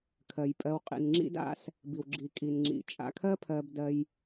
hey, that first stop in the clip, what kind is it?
aspirated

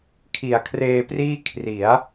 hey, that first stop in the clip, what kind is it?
aspirated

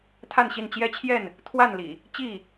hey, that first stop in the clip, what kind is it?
aspirated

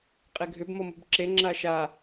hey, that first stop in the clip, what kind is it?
ejective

